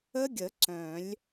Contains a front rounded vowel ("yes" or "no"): yes